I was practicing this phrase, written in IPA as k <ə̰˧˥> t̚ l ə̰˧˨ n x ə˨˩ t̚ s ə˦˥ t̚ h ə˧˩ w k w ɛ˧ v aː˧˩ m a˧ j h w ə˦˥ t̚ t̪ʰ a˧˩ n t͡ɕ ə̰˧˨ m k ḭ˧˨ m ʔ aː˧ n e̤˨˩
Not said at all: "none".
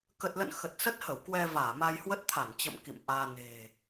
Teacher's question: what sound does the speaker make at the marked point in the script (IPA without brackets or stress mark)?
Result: ə˨˩